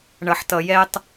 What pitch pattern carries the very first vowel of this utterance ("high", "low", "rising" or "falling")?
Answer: low